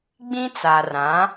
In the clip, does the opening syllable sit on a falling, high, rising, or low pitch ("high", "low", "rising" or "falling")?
high